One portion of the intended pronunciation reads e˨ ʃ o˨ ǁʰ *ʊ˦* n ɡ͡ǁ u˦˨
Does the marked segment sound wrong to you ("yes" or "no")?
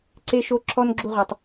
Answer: yes